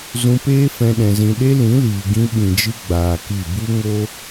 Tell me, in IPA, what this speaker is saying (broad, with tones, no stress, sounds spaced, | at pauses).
z ũ˧ p eː˦ f ɛ̃˦ ɗ ɛ̃˧ z ĩ˧ ɗ e˦ l ĩ˨˦ l iː˨ ɡ ĩ˦ ɓ ĩ˨ d͡ʒ ɨ˧ ɡ͡b aː˨ k i˦˨ b u˦ ŋ o˦